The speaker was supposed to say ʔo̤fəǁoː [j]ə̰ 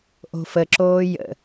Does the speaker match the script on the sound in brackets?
yes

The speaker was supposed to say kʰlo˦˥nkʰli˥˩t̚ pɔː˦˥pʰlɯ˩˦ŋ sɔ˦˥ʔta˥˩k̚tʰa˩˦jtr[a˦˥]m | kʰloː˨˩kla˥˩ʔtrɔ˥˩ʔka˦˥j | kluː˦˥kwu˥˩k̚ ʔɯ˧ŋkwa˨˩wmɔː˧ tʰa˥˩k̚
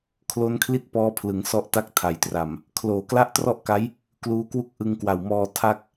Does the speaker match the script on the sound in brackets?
no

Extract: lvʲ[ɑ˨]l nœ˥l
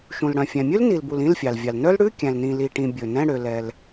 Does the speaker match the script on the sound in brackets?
yes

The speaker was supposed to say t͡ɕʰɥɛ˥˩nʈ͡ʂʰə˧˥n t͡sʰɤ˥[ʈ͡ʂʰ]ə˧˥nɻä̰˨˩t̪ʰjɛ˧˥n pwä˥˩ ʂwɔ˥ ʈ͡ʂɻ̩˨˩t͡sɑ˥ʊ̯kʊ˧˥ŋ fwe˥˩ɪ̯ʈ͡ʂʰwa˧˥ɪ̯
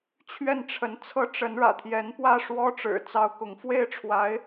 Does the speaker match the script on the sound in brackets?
no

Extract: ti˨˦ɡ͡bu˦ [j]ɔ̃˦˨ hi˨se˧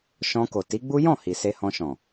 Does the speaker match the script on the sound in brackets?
yes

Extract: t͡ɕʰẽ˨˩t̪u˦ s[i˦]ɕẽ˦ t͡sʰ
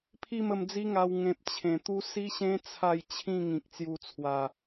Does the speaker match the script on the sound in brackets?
yes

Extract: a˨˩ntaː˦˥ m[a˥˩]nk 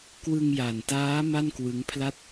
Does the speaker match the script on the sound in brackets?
yes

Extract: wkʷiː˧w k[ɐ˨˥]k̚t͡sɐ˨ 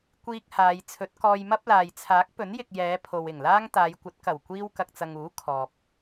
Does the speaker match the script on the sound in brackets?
no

